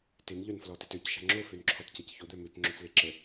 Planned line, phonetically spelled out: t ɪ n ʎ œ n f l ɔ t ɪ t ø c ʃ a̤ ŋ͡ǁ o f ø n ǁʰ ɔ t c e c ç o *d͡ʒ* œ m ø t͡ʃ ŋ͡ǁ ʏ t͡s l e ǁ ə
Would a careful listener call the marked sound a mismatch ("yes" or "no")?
yes